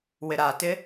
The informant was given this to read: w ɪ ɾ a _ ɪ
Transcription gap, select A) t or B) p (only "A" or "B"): A